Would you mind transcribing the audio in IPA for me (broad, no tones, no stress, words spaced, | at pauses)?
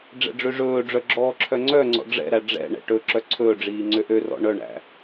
ɖ͡ʐɛ̰ɖ͡ʐøʐɵːɖ͡ʐœ ɡ͡ǁɔːǁʰœŋ͡ǀœŋ͡ǀɔ̰ ɖ͡ʐɛ̰ɾæ ɖ͡ʐɛ̰ ɳɛ̰ʈɵǁœ ǀʰɵːɖ͡ʐiː ŋ͡ǀøʔørɔ̰ ɳœɳæ̰